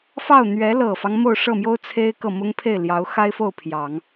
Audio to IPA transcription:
f ɑ˥˩ ʊ̯ n̪ ɥ ɛ˧˥ l ɤ˨˩ f ɑ˦ ŋ m o˥˧ ʊ̯ ʂ ɤ˥˩ m j o˥ ʊ̯ t͡sʰ e˥ ɪ̯ k ɤ˥˩ m ʊ˥ ŋ pʰ e˥˩ ɪ̯ l j ɑ˧˥ ʊ̯ x a˥ ɪ̯ f o˥˩ ʊ̯ pʰ j ɑ˨˩˦ ŋ

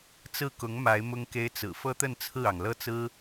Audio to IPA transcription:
t͡s ɹ̩˥˩ k ʊ˧˥ ŋ m a˧˥ ɪ̯ m ʊ˥ ŋ k e˥ ɪ̯ t͡s ɹ̩˨˩ f ɤ˥ t̪ ə˥˧ n t͡sʰ ɹ̩˥˩ ɑ˩ ŋ l ɤ˥˩ t͡s ɹ̩˥

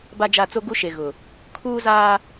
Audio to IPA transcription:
b a˦ d͡ʒ a˦˨ t͡s o˦ ɡ u˦ ʃ e˨ ɣ ʊ˨ | kʰ uː˦ z aː˦

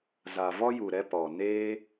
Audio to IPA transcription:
z a˨ v ɔ˦ j u˨ ɾ ɛ˧ p ɔ˨ n eː˦

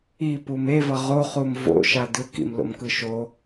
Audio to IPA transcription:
i p u m e v ʌ ʁ o χ u m v o̰ ʃ a d ɯ k ḭ m l o̰ m k ɯ ʃ o

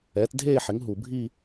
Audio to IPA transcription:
ɛː˩˥ t dʱ eː˥˧ ħ ɪ˩˥ ŋ ɦ u˩ bʱ i˥˧

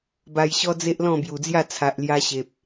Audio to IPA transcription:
b a˧ j ɕ ɔ˦ d͡z e˦ ʔ l ɔ̃˥˧ b j u˨˩ d͡z j a˥˧ t͡sʰ a˨ ʔ l j a˧ ɕ e˨ p̚

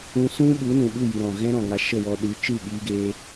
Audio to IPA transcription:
ũ˧ s ũ˦ ɓ u˨˦ n ũ˨ ɓ u˦˨ j ɨ˨ ɾ ɔ̃˨ ɣ ɛ̃˦ ɾ ɔ̃˨ ŋ a˧ ʃ ə˦˨ w ɔ˧ ɗ ɨ˨˦ t͡ʃ ɨ˦˨ ɓ iː˧ ɡ eː˧

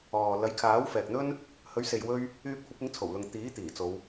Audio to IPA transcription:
ɔː˨ l ɐ˨˥ j kʰ aː˨˥ w f ɛː˨ k̚ n̪ ɵ˥ n | h ɵ˨˥ ɥ s e˨ j w ɵ˥ ɥ | yː˧ p̚ kʷʰ ɐ˨˥ p̚ ɪ˨˥ ŋ t͡sʰ o˨˩ w l ʊ˨ ŋ t̪ iː˨˥ t̪ iː˨˩ t͡s o˨˧ w

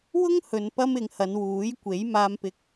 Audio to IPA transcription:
w ʊ˥ ŋ h ɵ˨ n p ɐ˧ m ɪ˨˧ ŋ h ɐ˨˧ n w uː˨˥ j kʷ e˨˥ j m aː˧ m p ɪ˧ k̚

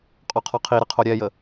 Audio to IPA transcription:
qʼ ɔ qʰ ɒ qʰ i ɾ ə qʰ o ɾʲ ɛ j ə

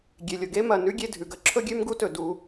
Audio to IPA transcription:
ɡʲ e˩ lʲ o˩ ɡ e˥ m ɐ˩ n ʉ˥ ɡʲ e˦ dʱ ʉ˩ ɡ ɐ˥ ǁʰ ɵ˥ ɡʲ ʉ˥ m ɡ u˥ t ɵ˩ d u˨

